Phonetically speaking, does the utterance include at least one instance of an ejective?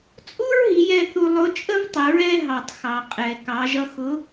yes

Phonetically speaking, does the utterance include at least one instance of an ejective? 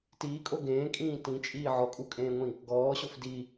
yes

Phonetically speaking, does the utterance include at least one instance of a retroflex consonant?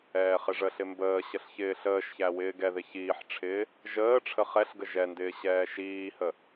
yes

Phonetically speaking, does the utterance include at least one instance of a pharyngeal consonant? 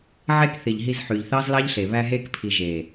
yes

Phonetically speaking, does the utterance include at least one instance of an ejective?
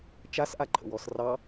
no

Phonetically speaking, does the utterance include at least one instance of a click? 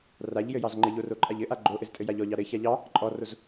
yes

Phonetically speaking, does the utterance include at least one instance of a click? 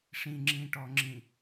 yes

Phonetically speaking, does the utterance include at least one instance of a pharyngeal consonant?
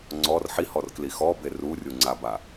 yes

